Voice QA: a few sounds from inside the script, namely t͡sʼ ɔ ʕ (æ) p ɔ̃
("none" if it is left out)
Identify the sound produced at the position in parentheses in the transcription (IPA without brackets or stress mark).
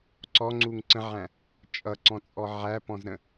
æ